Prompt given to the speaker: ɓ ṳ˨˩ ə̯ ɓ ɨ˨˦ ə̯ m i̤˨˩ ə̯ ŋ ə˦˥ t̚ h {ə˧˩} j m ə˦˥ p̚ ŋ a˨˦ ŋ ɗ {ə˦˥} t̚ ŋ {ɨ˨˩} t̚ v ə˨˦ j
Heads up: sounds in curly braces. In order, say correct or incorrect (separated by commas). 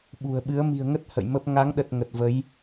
incorrect, incorrect, incorrect